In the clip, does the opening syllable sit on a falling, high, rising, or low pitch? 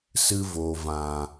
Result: high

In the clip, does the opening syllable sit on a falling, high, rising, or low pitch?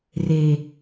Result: low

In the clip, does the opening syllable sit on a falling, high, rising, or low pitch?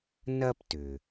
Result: high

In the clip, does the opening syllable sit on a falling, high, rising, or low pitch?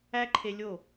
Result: high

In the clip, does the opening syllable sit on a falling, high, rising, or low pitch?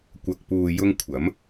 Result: low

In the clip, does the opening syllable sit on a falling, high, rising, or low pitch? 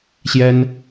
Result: high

